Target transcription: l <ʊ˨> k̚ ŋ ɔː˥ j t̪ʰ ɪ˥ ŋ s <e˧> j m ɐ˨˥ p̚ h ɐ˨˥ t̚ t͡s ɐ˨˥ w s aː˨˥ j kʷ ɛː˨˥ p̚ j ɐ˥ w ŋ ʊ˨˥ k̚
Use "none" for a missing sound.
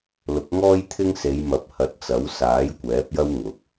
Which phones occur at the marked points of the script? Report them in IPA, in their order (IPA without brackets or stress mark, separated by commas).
ʊ˨˥, e˨˧